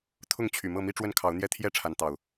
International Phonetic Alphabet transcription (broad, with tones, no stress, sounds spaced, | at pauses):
t̪ʰ ʊ˥˨ ŋ t͡ɕʰ y˨˩ m ɤ˥˨ m i˦ ʈ͡ʂ w ə˦ n kʰ ɑ˨˦ ʊ̯ n̪ j ɛ˥˨ t̪ʰ j ɛ˥˨ ʈ͡ʂʰ a˨˦ n t̪ ɑ˨˩ ʊ̯